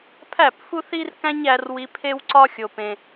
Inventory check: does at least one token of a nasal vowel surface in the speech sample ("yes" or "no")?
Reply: yes